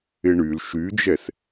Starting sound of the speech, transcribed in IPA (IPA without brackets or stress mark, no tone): ɪ